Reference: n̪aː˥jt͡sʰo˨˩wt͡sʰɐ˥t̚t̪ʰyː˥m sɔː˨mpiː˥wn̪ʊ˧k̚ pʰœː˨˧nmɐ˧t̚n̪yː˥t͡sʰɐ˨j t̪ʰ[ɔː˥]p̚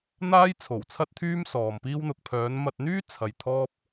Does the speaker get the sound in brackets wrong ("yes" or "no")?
no